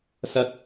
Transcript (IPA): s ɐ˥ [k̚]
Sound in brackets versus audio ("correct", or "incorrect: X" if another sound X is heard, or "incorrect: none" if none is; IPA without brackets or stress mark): correct